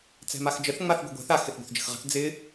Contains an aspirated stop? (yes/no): no